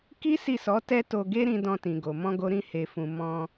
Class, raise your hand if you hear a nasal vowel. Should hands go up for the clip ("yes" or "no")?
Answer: yes